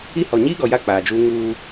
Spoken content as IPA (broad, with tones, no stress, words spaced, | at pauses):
i˦ hɔ˨ɲiː˦ɡɔ˨ja˦˨ k͡paː˨d͡ʒuː˦ ŋuː˦